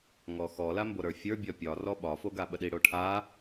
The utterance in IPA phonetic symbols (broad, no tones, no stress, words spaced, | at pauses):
ŋɔxɔ lamboɾə˞fʲə˞ bʲɒpʲɒ rɔɓɒ foɡaɓəɗi ɽoʈʰa